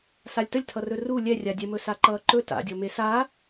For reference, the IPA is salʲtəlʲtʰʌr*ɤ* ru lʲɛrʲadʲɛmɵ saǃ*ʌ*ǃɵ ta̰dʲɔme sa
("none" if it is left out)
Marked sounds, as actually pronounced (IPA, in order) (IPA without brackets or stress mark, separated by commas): ɵ, ʌː